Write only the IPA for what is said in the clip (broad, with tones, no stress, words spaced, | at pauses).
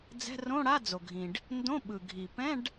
d͡zɛ̤˧˥˧rõ˧˥˧ ɽa˧˥˧ d͡zo˩ɡʱĩ˩ɖ | ndõ˧˥˧ ɓɯ˩ɡʱi˩pɛ̃˧˥˧ɖ